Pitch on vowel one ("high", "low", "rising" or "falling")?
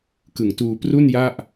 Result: low